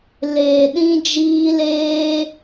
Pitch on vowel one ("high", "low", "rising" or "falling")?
low